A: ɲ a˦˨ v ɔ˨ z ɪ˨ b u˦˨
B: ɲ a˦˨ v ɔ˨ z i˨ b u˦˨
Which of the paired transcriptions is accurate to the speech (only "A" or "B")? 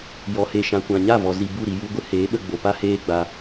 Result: B